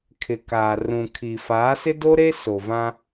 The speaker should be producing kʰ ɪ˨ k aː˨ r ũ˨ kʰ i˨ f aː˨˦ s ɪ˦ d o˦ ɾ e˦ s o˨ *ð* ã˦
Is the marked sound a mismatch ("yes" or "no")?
yes